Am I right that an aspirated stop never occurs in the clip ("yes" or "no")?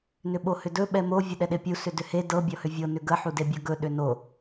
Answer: yes